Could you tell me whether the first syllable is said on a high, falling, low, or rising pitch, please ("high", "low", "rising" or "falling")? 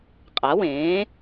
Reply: rising